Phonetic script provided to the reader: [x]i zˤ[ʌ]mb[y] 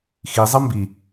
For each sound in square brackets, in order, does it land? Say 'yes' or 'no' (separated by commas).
yes, yes, no